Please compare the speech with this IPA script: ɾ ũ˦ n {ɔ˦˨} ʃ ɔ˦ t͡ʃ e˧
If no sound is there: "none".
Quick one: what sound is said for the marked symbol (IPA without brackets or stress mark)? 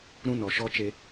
ɔ˨